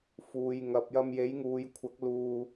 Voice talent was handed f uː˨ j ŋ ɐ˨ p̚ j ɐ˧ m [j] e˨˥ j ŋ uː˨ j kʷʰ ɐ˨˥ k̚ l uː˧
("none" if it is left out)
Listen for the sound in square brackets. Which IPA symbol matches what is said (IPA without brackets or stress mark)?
j